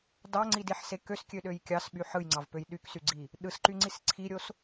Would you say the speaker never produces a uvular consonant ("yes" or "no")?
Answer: yes